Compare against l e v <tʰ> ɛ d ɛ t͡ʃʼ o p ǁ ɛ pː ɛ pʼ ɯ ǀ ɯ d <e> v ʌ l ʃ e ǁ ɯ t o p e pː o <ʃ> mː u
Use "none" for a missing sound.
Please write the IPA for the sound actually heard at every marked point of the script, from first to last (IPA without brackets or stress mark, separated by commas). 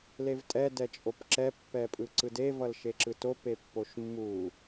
tʼ, e, ʃ